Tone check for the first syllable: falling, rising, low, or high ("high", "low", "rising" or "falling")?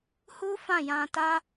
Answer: high